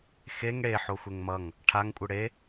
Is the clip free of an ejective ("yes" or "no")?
no